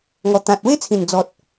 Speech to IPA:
ŋɔ˨˩t̪ã˨t̚we˦t͡sʰĩ˨˩n d͡zɔ˨t̚

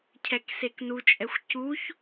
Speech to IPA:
cʰɛkseknut͡ʃʼɛxʷ cuç

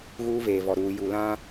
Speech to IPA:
ɣuː˦veː˨vɔ˨ ɾuː˨ ju˨lã˦

